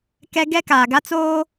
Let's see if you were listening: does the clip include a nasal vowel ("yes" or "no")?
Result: no